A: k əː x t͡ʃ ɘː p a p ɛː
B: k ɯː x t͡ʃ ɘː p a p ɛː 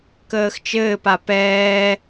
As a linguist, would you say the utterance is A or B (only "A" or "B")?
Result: A